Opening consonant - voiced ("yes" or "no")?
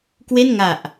no